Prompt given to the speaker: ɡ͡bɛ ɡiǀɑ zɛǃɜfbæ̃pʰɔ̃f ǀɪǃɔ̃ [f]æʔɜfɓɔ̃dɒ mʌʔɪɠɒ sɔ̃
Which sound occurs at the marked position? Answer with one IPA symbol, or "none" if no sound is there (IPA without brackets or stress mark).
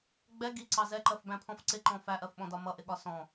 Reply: f